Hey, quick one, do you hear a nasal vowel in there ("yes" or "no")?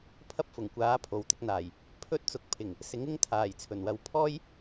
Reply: no